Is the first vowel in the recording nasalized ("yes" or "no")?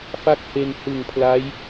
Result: no